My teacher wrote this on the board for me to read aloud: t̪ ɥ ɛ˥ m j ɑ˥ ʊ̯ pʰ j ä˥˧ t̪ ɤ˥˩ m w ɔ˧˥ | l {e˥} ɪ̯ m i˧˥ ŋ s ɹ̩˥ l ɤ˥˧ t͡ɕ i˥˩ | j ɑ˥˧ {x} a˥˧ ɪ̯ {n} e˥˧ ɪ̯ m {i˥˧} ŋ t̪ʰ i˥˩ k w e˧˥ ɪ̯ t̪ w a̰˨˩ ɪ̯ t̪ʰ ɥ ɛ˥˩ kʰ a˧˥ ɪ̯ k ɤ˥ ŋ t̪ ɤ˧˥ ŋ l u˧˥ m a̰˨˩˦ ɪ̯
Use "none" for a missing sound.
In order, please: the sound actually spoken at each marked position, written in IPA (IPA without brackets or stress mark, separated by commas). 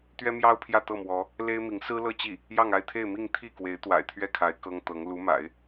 e˥, ŋ, t̪ʰ, i˥˧